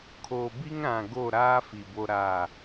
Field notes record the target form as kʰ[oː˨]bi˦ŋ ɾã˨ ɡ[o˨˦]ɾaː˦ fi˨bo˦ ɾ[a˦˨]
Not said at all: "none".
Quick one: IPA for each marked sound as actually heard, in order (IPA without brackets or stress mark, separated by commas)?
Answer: oː˨, o˦˨, a˦˨